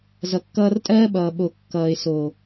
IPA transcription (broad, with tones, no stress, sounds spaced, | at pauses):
z ʌ˨ kː ʌː˧ r tʼ ɜː˦ ɓ ʌː˨ ɓ o˨ kː ʌː˨ ɪ̯ s o˨